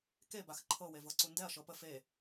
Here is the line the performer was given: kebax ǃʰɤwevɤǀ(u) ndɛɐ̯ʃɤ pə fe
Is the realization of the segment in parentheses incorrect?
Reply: no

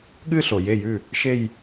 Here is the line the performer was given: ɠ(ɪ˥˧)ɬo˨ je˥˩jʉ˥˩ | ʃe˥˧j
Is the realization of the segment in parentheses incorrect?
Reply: yes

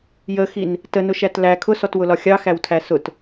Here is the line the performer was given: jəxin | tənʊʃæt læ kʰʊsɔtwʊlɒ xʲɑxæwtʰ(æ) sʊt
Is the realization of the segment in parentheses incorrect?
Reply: no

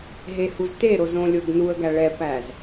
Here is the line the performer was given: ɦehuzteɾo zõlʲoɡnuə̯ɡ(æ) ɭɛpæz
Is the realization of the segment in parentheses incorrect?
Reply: no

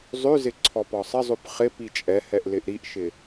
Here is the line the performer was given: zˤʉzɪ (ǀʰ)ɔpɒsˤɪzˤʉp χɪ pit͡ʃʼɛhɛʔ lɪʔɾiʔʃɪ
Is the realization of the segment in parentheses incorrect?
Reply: no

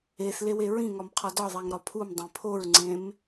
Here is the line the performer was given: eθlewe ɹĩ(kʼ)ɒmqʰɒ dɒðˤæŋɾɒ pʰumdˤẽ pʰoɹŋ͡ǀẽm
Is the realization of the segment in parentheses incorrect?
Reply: yes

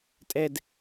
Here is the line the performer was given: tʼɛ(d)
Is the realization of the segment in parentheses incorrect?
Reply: no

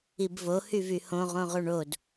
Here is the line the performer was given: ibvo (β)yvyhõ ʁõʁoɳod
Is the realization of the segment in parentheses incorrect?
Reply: yes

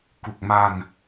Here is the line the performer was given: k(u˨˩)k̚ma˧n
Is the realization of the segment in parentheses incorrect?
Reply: no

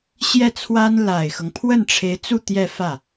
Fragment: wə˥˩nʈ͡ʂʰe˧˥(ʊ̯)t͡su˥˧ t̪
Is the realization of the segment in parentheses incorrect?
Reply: yes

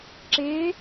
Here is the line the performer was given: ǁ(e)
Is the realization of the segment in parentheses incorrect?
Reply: no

